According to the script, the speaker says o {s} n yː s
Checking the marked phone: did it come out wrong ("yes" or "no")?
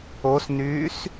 no